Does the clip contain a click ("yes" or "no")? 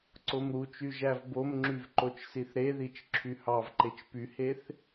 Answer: yes